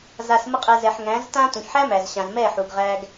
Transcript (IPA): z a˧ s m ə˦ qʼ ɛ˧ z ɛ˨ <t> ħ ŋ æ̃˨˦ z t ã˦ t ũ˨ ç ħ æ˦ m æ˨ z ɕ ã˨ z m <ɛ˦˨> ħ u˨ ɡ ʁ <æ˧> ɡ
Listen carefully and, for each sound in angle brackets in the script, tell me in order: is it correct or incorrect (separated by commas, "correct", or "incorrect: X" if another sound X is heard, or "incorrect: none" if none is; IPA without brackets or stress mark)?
incorrect: none, correct, correct